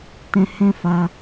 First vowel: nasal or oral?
nasal